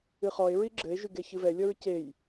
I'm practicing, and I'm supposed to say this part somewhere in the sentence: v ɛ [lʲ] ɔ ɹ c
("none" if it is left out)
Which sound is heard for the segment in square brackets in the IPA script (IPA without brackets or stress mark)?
lʲ